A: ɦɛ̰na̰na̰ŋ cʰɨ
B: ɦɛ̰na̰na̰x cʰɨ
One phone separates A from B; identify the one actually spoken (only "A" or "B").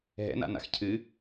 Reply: B